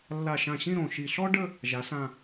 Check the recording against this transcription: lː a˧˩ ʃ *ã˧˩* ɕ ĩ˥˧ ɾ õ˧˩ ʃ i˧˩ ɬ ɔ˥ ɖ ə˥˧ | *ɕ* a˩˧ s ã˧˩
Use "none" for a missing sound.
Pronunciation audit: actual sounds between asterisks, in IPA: ã˧˩, ʒ

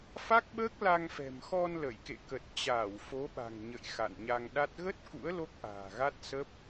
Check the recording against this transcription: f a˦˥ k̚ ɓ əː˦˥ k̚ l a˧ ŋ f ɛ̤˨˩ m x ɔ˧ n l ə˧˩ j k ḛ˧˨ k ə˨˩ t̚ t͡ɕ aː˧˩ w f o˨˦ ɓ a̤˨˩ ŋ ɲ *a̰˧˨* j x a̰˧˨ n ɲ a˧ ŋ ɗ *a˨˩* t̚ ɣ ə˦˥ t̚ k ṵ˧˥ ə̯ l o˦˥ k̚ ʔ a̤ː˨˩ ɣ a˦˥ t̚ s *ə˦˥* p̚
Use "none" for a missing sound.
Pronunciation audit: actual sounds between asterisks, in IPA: ə̰˧˨, a˦˥, ə˦˥

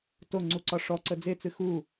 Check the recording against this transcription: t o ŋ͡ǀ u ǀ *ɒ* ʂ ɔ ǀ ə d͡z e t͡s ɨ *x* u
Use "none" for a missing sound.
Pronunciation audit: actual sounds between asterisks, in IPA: ɒ, x

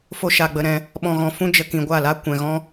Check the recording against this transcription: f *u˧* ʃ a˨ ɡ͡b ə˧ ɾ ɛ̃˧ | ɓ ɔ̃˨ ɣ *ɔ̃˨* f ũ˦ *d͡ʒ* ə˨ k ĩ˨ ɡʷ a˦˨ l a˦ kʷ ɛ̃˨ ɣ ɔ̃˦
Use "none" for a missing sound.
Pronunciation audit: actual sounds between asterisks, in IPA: o˧, ɔ̃˨, d͡ʒ

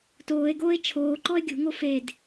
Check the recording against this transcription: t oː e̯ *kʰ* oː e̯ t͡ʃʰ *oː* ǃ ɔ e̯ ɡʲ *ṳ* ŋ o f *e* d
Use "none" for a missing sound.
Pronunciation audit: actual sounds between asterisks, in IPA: ɡ, oː, ṳ, e

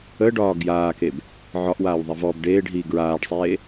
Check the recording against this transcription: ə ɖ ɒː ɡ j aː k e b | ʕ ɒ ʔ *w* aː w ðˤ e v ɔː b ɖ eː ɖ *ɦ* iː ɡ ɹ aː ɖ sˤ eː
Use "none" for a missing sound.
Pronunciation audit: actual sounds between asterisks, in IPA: w, ɦ

